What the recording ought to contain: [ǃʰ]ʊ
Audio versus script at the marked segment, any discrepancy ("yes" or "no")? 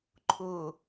no